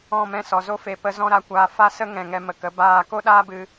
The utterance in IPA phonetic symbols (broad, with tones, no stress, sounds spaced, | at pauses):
ɔ̃˦˨ m ɛ̃˦˨ s ɔ˨ z o˦ f e˨ p ə˧ z ɔ̃˧ ɾ a˨ kʷ aː˨ f a˦ s ə˦ ŋ ɛ̃˨ ŋ ɛ˧ m ə˨ k ə˨˦ b aː˦˨ k o˦ ɗ aː˦ b ɨ˧